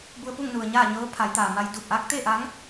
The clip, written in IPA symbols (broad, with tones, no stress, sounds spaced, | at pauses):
b u˧ ə̯ p u˥˨ ŋ n u˩ ə̯ ɲ aː˥˨ ɲ ɤː˧˥ pʰ a˩˧ j t̪ aː˩ m a˧ j d uː˧˩ p̚ ʔ aː˧˥ k̚ t̪ eː˥˨ ʔ aː˧˥ ŋ